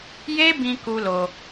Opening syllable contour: high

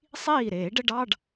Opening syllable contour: falling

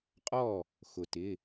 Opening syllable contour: falling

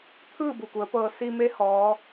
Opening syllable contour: falling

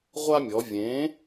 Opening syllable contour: high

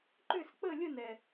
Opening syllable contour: falling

